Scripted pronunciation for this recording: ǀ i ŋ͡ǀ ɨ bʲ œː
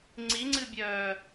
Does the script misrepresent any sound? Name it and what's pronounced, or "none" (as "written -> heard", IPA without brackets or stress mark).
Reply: ǀ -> ŋ͡ǀ